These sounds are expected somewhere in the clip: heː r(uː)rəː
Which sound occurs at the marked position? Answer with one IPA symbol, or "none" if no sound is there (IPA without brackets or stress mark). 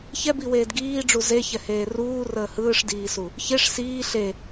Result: uː